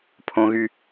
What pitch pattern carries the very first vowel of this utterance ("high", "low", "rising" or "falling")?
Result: high